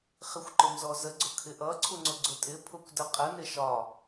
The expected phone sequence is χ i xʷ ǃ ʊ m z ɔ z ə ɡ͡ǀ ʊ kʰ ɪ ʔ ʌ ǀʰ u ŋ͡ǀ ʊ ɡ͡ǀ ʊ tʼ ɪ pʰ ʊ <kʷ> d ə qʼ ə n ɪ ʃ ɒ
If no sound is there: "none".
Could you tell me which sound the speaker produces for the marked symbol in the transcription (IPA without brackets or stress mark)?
kʷ